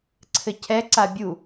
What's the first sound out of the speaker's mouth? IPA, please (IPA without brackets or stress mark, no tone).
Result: ǀʰ